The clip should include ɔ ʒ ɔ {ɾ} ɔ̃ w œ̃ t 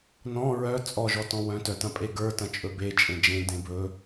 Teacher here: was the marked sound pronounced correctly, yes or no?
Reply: no